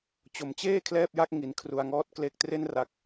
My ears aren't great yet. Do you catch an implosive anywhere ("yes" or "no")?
no